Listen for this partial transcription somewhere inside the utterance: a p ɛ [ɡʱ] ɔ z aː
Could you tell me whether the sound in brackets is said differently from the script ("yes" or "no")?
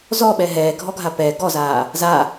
yes